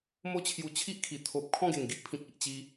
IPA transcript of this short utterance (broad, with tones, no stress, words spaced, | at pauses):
mo˦t͡ɕʰju˧t͡ɕʰi˦ʔkʰi˨˩ t̪ʰo˨p̚ kʰɔ̃˥˧ɡe˨˩ŋɡi˦ʔpʰĩ˨k̚ i˨ʔt͡ɕi˧